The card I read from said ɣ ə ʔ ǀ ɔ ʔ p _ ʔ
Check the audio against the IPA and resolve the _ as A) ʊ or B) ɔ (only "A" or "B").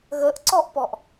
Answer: B